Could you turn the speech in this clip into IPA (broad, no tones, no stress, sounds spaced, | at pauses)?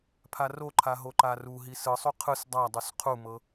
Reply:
pʰ a r o ǃʰ a ɦ o ǃ a r u ɦ i s ɯ sˤ u qʰ ɯ s dˤ a dˤ u s qʰ u m ɤ